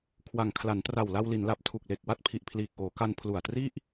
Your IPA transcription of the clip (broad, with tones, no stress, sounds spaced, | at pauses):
kʰ w a˨˩ ŋ kʰ l a˩˦ n t r a˨˩ w l a˧ w l i˩˦ n l a˨˩ p̚ tʰ u˨˩ k̚ l e˨˩ k̚ w a˥˩ t̚ pʰ i˨˩ ʔ pʰ l iː˨˩ k̚ ʔ oː˩˦ k a˧ n pʰ l u˨˩ a̯ t r i˥˩ ʔ